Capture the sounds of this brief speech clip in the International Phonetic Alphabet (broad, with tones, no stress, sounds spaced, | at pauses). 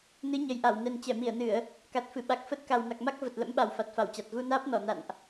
n ɨ˨˦ ɲ ə˨˩ j ʔ a˧˩ w n ɛ˨˩ n t͡ɕ ɛ˧˩ m i˧˩ ə̯ n ɨ˧˩˨ ə̯ | k a˨˩ t̚ f ɨ˧˩ ɓ a˨˩ k̚ f ə˦˥ t̚ k a˨˩ w n a˨˩ k̚ m a˦˥ k̚ v ə˨˩ t̚ l ə̰˧˥ m ɓ a˨˩ w f a˨˩ t̚ f a˧˩ w t͡ɕ a˨˩ t̚ ɣ u˧ n aː˦˥ p̚ n ɔ˧˩ n a̰˧˨ n ʔ